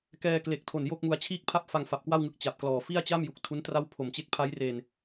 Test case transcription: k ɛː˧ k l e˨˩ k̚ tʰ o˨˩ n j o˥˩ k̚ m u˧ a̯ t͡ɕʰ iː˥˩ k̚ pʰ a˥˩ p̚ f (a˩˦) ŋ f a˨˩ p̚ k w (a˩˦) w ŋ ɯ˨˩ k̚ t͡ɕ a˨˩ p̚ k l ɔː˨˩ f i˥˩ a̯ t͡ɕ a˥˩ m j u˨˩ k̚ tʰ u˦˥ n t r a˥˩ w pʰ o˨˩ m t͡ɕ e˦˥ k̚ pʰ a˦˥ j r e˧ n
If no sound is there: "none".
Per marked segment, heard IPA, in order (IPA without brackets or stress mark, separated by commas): a˧, a˥˩